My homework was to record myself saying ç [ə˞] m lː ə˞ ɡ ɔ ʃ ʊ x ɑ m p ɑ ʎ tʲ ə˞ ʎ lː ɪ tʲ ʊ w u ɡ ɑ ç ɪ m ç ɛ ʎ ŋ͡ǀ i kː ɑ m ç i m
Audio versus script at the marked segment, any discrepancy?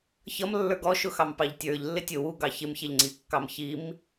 yes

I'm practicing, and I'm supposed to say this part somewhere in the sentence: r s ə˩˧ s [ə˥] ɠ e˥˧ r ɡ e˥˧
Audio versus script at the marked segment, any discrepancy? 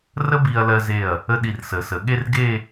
yes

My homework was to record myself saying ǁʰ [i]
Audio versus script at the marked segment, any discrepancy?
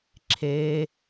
yes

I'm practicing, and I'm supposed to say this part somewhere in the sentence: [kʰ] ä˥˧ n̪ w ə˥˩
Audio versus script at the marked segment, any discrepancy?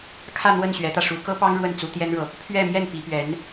no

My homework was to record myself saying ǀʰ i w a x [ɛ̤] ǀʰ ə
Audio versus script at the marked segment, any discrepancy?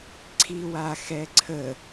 yes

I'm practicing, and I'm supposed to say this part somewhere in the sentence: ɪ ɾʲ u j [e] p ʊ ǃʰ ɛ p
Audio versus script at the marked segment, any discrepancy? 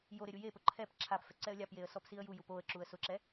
no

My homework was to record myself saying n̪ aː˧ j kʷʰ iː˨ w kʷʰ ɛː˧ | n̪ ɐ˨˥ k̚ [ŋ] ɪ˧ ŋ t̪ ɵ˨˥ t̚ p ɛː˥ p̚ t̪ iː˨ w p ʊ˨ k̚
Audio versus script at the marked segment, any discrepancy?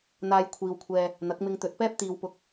yes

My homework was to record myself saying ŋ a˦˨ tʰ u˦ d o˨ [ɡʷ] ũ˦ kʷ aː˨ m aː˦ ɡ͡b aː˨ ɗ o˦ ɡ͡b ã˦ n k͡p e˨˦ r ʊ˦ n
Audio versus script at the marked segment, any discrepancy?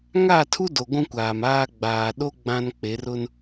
no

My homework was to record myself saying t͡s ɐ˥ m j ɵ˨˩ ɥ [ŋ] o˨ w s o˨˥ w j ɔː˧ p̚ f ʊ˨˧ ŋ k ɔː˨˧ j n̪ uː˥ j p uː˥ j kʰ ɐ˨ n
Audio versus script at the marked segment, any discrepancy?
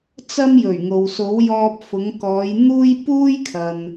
no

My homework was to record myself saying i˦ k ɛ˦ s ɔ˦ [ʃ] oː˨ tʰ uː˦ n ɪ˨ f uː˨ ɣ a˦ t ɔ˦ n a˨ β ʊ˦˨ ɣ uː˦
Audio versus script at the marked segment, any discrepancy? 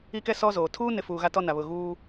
yes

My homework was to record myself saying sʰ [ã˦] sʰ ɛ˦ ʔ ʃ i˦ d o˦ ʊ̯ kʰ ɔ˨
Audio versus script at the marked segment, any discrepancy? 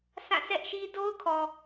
yes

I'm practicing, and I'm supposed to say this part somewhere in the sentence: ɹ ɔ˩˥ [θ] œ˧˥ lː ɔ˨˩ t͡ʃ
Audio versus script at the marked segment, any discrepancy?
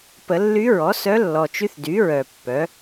yes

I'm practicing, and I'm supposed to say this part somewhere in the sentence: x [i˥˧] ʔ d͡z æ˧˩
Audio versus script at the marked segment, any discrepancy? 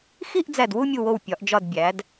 no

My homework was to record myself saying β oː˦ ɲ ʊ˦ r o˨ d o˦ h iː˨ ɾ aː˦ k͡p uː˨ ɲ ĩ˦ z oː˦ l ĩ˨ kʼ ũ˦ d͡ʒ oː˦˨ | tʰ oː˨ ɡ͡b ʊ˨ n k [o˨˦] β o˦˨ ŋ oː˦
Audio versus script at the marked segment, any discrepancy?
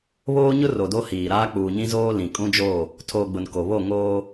yes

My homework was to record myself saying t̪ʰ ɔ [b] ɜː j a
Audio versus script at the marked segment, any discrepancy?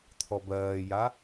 no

